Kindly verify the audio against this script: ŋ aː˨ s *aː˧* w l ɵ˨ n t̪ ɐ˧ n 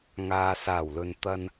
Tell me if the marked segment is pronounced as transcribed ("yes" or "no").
no